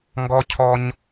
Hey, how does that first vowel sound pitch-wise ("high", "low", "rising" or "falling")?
high